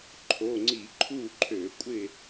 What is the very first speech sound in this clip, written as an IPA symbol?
ǃʰ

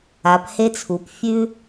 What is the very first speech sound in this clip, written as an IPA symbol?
a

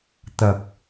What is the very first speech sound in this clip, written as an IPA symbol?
t̪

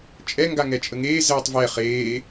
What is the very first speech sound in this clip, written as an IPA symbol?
t͡ʃʼ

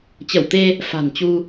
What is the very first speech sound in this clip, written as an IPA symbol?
t͡ɕ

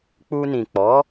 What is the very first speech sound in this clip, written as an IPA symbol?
k͡p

